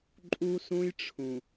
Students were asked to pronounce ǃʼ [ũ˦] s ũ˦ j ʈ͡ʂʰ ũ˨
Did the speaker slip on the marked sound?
yes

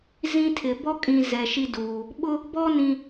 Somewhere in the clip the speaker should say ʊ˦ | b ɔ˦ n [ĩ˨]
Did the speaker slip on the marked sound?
no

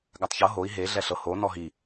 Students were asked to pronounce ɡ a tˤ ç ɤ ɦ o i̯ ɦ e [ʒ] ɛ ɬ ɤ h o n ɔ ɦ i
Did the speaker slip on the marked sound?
yes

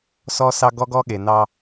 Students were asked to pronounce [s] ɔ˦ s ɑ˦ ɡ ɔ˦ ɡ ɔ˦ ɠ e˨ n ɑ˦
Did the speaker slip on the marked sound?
no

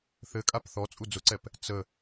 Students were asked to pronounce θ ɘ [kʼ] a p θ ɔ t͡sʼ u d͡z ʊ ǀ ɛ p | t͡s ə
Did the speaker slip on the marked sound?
no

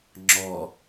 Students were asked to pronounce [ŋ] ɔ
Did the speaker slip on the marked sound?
yes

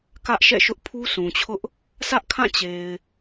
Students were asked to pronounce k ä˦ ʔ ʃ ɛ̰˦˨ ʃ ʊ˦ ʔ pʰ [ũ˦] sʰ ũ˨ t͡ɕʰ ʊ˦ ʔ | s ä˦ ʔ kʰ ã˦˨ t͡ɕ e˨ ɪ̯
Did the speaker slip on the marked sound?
yes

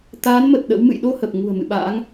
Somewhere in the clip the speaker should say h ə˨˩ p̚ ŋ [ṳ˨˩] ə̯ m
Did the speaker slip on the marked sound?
no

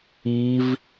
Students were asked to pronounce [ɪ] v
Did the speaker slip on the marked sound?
yes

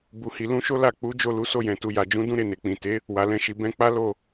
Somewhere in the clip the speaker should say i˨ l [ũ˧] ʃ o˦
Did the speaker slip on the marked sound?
no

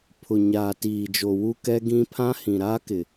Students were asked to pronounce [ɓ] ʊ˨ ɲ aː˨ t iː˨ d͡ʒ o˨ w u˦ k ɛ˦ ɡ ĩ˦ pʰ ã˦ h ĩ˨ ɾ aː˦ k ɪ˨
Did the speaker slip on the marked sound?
yes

